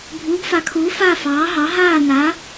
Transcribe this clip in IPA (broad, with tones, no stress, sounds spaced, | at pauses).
bʱ uː˨˥ ɡ f a˨˥ kʰ uː˨˥ f a˥˧ f ɑː˨˥ ɦ ɑ˨˥ ɦ aː˥˧ n a˨˥